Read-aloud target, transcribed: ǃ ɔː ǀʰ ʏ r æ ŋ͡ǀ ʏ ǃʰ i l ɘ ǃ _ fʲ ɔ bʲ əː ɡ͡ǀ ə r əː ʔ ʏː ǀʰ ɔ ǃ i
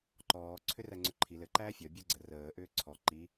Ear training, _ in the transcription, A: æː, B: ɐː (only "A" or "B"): A